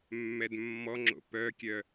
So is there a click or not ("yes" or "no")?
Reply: yes